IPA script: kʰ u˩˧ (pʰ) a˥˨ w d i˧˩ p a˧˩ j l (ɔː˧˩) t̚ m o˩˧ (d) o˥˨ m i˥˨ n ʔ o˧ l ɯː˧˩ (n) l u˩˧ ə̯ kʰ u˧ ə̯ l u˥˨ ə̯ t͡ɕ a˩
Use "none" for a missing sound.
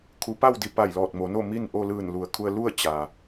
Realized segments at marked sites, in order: p, ɔː˧˩, n, n

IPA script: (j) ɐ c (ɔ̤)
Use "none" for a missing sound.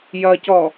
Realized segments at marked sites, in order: j, ɔ

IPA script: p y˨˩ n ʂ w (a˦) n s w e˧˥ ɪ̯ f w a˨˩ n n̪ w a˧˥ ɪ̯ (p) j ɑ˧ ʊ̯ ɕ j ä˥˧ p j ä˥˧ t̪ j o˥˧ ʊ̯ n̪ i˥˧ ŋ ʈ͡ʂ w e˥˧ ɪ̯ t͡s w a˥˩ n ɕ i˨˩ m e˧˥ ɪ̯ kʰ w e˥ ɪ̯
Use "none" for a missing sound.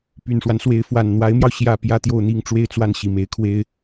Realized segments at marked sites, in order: a˦, m

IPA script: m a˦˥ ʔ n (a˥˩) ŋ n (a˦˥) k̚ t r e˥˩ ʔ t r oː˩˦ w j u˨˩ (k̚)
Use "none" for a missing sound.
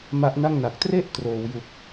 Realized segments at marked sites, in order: a˥˩, a˨˩, k̚

